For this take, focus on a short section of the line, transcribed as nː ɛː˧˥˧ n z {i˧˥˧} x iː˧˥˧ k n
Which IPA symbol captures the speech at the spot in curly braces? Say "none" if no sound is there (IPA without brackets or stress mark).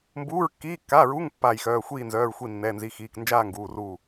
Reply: i˧˥˧